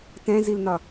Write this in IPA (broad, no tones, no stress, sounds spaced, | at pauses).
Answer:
t ɛ̃ z i l n ɒ